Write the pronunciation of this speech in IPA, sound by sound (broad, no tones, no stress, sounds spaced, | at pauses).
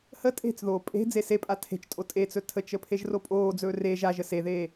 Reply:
h ə tʼ e̤ t͡s ð oː pʼ e̤ d͡z e s e pʼ a tʰ e̤ t͡ʃ tʼ o tʼ e t͡s ɵ tʰ ə t͡ʃ ə pʰ e ʒ r o pʼ oː d͡z ɵː r e ʒ a ʒ ə s e ð eː